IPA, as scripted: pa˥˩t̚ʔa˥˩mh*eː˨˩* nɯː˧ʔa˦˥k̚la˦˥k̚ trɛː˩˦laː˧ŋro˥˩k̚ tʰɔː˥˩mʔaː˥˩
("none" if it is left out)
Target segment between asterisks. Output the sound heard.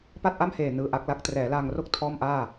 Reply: eː˨˩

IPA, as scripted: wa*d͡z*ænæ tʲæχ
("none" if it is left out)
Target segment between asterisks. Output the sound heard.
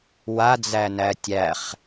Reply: d͡z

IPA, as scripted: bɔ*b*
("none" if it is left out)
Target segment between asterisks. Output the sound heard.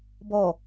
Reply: none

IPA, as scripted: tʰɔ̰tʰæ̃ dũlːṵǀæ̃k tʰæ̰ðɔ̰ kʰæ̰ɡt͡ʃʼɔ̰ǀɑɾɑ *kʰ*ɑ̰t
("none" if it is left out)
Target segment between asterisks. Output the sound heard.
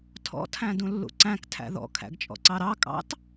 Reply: kʼ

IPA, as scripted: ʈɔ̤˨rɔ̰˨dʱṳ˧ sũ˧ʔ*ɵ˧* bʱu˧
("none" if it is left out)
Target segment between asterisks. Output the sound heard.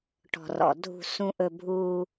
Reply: ɵ˧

